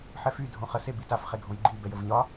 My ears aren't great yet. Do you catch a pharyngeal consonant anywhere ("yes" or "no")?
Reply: yes